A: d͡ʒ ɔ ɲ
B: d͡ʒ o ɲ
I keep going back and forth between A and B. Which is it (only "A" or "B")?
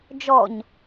A